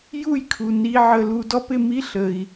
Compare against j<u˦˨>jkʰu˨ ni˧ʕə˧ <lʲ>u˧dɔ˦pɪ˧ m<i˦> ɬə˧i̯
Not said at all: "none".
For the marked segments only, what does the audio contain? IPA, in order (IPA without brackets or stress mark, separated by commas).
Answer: u˦˨, l, i˦